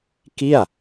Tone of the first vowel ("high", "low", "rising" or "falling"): falling